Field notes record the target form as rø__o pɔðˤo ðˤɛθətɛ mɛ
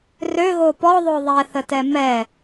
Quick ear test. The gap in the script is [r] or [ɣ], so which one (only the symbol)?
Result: ɣ